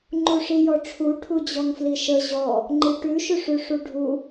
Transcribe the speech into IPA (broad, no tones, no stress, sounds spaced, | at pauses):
ŋ͡ǃ u ʂ i j ɔ ʈ͡ʂʰ u ʈʰ u d͡ʑ ɔ ŋ f l i ʃ ə ʑ ɔ | ŋ͡ǃ i ʈ ʉ ʃ ʉ ʂ ʉ ʂ u ɖʱ u